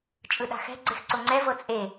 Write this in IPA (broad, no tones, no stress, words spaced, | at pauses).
t͡ʃʼɯɗa̤xɛ̤ ɡ͡ǀexǀoŋ͡ǀɛ vɤt͡sʼe